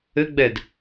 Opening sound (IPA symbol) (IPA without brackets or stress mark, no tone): ɘ